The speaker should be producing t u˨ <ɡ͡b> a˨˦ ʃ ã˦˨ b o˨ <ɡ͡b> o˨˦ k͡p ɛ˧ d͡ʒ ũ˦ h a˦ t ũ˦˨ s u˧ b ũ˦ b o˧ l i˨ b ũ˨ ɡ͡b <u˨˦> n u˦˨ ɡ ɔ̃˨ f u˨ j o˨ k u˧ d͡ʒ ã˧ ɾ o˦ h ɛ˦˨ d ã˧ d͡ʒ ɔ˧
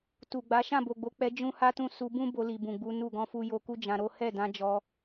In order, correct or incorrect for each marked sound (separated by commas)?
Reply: correct, correct, correct